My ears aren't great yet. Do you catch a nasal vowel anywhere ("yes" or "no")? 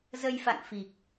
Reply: no